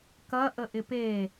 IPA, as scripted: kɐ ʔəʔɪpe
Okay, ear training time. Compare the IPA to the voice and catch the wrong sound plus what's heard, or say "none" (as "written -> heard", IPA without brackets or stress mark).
none